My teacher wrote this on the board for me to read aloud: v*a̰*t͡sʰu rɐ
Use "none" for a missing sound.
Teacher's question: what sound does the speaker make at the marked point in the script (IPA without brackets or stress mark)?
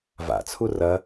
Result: a̰